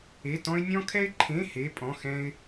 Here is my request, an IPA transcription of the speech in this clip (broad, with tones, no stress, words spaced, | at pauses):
e˧˥˧tɔ̃˥ɪ̯ nʲɔ̃˥kʰɛ˥ɪ̯ǃʰẽ˧˥˧ he˧˥˧pʼɔ̃˧˥˧xɛ̃˥ɪ̯